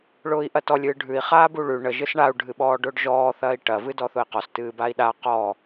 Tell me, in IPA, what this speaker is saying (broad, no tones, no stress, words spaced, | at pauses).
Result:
ɭʊːi̯ʔɐtɔlʲ ɨːɖʱʉi̯ χaːbuɭʉ ɳə ʒɨsɳau̯ ɖʱɨɓɔːɖʊːɖʒɔː θɐːi̯ʈɐ vɨdɔθʊi̯qɔs tɨːbai̯ɗa qɔ